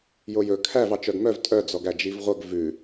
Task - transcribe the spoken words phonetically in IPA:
jojɵ kʰæv ɑt͡ʃœɡmœv tʼœ d͡zɔɡæd͡ʒivʁʷœɡ vʉ

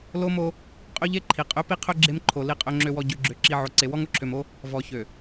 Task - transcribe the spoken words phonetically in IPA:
lo˦mo˦ | qʼø˦ʎe˦ ǃʰi˨qʼø˦ pi˦qʰø˦ ɡ͡ǁe˦mǃʰo˨ li˨qʼø˨ŋ͡ǁø˨wɔ˨ ɟø˨ɡ͡ǁø˨ ǁi˨ ʕo˨ǀe˨wɔ˦ŋ o˨ǁʰø˨mo˦ | vɔ˨çø˨

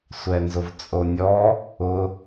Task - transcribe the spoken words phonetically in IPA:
sʷɛnzʊvt͡sʼonʲɔ | ʊ

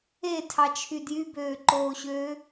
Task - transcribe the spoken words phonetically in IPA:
etʰɑt͡ʃʰy djybøːǃoːɕøː

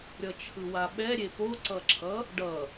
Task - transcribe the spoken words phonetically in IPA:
ɾʲʌt͡ʃʰɯwaɓɛ ɾʲepoǀʌǁʰʌ | ɖʌ

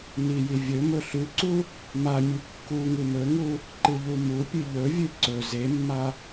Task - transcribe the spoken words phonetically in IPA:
niji vʲɵ mɵɬʉǀu | mamʲʉ kːu ŋɨmɵŋu | ǃɨʎumupʲɨ ʎɵvʲɨ ǀɵ zemːa

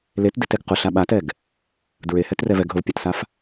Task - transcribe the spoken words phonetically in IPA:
letdeteɡ qʊɬa ɓatɛɡ | dɹehɛtrɛv ɛɡɦʊvpʲatsaf

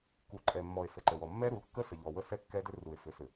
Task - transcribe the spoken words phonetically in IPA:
ku˨ǃʼɛ˨mːɔ˨e̯ sə˨ǃə˨wɔ˨ mːɛ˦ɾu˨˦lkːə˦ sə˨ʎɔ˨wə˦sɛ˦ kːɛ˦dʏ˦ru˨e̯ fʏ˨˦sʏ˨

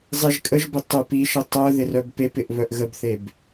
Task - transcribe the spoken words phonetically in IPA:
zˤɪʒ kʼəʒbɪ tˤœp iʃə tˤœ ðɪrœbpepɪʔ βœʔɣəbθeb

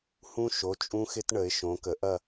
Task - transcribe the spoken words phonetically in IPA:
hũ˦ʃo˩˧˩t͡ʃʼũ˦xɪ˦t ɳə˩˧ɪ̯ʃõ˩˧kə˩˧ʔɐ˦˨

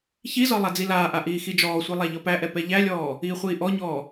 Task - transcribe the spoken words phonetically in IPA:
çizɒ lˠad͡zilaːʔa ʔiːxid͡ʒɔːsʷi lˠaʎɒpæʔɛ pɛʎælʲɔː | iːχʷiːʔɔɲɔː

